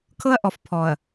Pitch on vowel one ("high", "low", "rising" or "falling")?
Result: high